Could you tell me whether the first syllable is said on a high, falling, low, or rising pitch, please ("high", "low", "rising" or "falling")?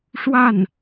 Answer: falling